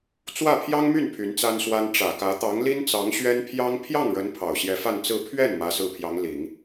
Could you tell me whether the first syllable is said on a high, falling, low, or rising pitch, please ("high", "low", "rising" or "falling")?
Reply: falling